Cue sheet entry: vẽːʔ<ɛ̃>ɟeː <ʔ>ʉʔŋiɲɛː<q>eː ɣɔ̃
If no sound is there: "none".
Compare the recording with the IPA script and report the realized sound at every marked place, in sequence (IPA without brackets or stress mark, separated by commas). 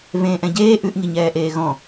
ɛ̃, ʔ, ʔ